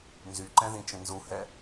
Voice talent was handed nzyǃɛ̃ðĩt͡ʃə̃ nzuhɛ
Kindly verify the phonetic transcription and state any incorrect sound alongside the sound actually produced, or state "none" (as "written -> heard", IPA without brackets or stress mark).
none